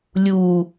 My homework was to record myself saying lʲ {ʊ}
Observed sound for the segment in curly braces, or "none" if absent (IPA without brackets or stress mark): u